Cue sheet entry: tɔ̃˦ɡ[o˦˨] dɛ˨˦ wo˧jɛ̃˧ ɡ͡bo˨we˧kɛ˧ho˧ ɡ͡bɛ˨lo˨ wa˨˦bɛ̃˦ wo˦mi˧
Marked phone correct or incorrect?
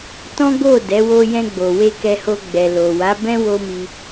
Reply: correct